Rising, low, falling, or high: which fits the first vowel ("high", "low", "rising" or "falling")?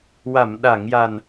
low